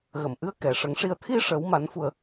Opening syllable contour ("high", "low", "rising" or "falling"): low